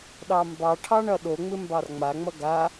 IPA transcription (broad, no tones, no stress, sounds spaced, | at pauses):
ɗ ɑ m b ɑ ʈʰ ɑ ɳ ʌ ɗ o ŋ͡m ɪ m b ɑ r ŋ͡m a ŋ͡m ʌ ɡ a